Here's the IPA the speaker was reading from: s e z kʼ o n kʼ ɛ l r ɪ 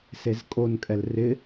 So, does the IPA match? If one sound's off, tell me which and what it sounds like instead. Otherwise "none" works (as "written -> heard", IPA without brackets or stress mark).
none